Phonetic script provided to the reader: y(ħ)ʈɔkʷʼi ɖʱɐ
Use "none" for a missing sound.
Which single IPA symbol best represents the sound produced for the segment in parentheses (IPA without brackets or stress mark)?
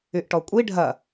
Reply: ʔ